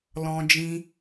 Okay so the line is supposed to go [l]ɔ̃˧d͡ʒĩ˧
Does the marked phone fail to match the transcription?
no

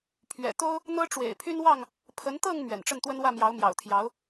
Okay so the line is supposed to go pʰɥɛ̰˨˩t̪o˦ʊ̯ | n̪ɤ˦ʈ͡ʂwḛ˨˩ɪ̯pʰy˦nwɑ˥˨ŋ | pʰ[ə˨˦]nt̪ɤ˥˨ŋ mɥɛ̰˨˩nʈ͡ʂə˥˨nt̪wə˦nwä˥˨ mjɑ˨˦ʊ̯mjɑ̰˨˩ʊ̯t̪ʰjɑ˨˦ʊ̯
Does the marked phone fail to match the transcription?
no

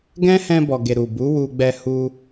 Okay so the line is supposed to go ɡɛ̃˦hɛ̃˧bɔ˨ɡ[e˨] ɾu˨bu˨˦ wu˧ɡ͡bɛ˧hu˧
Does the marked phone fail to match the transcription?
no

